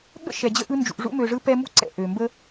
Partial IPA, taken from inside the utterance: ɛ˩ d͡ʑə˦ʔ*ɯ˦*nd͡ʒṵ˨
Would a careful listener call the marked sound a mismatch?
no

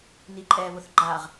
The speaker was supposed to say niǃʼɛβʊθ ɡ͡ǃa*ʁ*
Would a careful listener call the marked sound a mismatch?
no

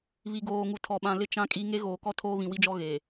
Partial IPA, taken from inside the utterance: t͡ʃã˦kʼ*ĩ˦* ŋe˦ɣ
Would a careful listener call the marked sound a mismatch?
yes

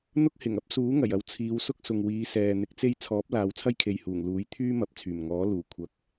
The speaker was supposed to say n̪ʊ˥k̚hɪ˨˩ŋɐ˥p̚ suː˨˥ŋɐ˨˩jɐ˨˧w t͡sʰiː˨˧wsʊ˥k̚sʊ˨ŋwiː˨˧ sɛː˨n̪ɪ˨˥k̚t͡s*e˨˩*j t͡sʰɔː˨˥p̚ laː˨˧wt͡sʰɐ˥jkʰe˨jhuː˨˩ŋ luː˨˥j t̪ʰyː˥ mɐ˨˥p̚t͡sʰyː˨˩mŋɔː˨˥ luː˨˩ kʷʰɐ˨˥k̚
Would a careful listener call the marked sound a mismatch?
yes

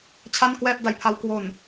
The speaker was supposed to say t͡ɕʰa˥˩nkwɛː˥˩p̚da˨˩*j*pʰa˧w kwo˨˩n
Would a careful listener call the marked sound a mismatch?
no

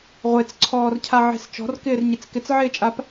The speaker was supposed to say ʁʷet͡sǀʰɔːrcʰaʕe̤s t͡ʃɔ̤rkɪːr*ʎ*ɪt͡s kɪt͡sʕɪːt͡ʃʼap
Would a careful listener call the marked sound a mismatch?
yes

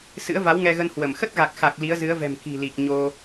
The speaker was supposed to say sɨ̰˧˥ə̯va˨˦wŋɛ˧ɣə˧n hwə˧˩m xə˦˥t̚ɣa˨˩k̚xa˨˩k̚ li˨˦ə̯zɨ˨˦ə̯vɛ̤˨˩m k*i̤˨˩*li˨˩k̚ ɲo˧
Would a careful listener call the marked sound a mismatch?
no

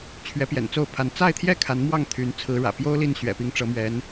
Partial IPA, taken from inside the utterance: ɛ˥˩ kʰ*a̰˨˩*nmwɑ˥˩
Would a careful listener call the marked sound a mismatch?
yes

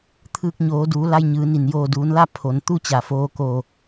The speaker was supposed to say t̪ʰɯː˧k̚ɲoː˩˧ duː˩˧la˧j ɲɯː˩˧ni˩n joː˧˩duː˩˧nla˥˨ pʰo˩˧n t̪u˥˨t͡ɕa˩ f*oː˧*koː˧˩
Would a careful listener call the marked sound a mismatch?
no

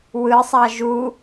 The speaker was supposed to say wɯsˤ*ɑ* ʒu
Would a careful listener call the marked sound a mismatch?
no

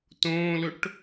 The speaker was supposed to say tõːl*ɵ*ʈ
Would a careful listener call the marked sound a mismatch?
no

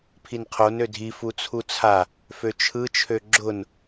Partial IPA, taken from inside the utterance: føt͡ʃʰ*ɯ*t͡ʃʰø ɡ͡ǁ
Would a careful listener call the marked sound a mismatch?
no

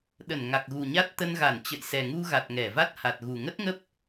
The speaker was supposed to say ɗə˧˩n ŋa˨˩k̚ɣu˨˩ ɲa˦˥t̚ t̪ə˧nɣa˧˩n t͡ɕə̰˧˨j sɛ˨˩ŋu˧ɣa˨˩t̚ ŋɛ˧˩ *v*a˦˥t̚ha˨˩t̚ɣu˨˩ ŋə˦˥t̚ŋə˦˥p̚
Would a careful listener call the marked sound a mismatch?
no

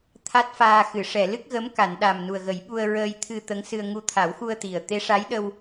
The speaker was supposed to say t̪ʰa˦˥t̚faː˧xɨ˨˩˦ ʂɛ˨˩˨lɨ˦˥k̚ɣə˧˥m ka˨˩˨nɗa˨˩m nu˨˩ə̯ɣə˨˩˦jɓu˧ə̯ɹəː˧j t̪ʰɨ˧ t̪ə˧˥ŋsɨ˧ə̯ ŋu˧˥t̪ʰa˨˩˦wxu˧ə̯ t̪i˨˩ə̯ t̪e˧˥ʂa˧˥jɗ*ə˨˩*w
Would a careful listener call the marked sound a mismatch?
yes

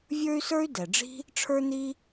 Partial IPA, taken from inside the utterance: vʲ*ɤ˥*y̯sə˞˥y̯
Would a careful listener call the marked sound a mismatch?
yes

